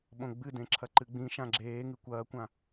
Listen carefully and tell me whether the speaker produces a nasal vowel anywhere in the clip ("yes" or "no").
yes